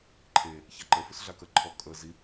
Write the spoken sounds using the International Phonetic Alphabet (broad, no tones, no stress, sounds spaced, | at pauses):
ǃʰ e | ç a ǃ ə f ʏ s ɮ a k ə ǃʰ ɔ kʼ ə z i